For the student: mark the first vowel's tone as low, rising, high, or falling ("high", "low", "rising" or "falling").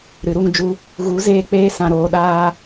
rising